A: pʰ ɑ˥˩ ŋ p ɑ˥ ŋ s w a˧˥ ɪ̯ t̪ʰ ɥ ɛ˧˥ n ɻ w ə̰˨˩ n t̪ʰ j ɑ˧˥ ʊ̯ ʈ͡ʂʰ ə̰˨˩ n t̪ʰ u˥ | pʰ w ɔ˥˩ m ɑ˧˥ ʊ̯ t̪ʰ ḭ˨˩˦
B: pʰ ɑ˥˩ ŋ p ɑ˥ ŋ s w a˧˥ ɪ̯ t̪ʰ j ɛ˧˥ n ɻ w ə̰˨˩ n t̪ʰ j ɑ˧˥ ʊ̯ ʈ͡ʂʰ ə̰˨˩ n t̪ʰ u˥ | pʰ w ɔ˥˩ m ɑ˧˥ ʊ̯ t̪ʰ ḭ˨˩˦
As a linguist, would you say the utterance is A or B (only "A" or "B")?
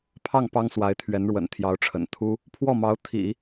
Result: A